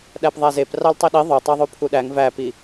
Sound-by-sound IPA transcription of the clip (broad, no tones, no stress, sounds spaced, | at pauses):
ɗ æ p ðˤ æ z e p r ɑ l tˤ i ɗ i ðˤ ɵ tˤ ɑ ðˤ u pʰ u ɗ æ ŋ v æ p i